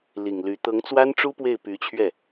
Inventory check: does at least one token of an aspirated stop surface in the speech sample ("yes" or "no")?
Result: yes